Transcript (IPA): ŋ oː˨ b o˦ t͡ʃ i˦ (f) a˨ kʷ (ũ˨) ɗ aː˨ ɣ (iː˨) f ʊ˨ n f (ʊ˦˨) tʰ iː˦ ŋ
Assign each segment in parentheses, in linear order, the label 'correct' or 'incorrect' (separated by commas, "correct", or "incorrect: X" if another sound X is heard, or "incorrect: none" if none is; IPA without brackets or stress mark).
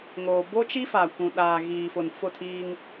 correct, correct, correct, correct